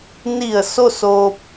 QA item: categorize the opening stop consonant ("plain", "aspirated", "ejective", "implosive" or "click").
plain